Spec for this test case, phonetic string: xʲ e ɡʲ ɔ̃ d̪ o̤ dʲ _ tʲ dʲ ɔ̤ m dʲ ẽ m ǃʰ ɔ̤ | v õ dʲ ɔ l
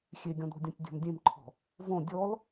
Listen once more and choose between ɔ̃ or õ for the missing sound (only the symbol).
ɔ̃